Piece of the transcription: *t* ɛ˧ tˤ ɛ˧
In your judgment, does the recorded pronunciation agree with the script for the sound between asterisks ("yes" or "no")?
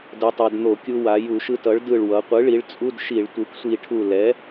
no